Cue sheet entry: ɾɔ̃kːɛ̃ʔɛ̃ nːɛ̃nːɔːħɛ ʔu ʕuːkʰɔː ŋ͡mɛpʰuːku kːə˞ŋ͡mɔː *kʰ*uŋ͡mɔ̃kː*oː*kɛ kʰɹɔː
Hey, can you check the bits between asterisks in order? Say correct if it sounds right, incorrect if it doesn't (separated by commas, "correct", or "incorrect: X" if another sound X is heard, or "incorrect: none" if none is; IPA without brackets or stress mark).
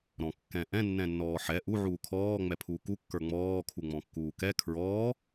correct, incorrect: uː